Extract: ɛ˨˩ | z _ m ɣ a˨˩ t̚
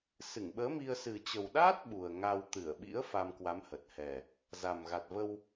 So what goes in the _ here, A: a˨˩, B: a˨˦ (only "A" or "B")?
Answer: A